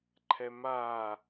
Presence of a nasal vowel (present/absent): absent